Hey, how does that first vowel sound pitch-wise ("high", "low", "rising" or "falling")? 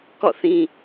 falling